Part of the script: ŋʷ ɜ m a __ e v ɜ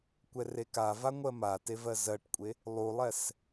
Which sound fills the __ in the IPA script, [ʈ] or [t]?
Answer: t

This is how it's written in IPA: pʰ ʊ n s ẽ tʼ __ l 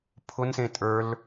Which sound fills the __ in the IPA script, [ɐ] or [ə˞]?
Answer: ə˞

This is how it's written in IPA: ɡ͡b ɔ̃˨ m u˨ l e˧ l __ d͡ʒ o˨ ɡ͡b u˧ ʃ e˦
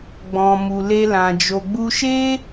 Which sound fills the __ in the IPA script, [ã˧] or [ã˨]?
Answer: ã˨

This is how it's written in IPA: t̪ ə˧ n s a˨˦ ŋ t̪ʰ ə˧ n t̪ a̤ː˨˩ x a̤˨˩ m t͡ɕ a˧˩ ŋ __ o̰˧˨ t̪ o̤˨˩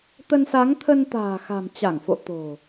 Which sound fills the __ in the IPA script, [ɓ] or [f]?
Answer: f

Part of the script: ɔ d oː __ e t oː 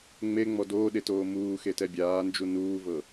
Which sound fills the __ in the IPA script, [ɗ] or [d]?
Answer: ɗ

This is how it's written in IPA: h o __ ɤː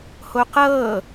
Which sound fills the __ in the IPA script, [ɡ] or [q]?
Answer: q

